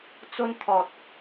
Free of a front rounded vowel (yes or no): yes